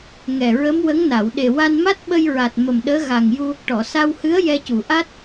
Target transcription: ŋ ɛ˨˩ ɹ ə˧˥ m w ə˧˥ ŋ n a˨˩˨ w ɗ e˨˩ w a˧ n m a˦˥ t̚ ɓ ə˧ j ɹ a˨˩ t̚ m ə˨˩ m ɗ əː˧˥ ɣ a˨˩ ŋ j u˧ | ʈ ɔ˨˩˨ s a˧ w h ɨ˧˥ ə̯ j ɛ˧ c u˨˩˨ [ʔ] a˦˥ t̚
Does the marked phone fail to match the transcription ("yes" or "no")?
no